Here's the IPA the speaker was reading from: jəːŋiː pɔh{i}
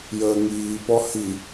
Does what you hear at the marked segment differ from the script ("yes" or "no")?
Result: no